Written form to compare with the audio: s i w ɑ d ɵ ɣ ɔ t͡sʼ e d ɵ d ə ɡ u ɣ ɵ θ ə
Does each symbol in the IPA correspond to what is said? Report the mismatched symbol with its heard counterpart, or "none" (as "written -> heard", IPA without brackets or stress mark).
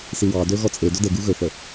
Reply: none